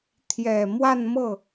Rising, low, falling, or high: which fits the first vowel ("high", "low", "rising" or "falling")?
low